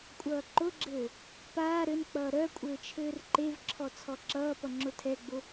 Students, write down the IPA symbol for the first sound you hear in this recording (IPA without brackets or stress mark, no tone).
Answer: kʷʼ